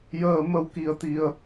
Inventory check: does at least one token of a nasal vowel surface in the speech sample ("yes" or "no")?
no